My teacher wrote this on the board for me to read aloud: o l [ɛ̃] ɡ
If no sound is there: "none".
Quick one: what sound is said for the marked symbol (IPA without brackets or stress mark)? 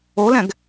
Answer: ɛ̃